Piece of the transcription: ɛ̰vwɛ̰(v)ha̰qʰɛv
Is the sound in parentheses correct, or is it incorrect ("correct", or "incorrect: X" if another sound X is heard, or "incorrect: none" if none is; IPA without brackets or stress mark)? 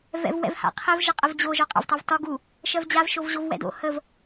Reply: correct